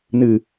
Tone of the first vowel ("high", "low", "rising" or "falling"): low